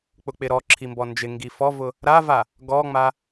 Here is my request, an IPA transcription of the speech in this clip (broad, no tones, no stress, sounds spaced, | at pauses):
k͡p ʊ k͡p ɪ ɾ ɔ ǁʰ i m b ɔ n d͡ʒ ɪ ŋ ɡ i f ɔ v ʊ | ɾ a v a | ɡ ɔ ŋ͡m a